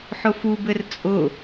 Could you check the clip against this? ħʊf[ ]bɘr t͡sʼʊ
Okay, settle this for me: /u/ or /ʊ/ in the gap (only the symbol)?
u